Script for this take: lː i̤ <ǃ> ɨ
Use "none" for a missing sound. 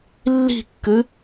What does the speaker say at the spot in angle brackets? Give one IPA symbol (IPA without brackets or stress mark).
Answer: kː